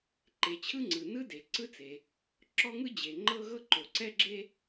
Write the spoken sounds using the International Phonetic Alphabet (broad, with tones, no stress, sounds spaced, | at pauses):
ǃ e˩ t͡ɕʰ ɯ˥ ŋ͡ǀ ɯ˩ n ɯ˥ d e˩ ǀ ɯ˥ t͡s e˩ | ǁ ɔ˥ ŋ ɯ˥ d͡ʑ e˩ ŋ͡ǃ ɤ˥ ɣ ɤ˥ ǃ o˩ ǀ ɛ˥ ɡ͡ǁ e˥